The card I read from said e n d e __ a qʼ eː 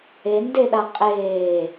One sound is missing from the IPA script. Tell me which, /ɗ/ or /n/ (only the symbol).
ɗ